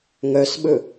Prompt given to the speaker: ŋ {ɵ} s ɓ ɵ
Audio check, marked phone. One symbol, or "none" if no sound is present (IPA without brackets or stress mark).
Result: œ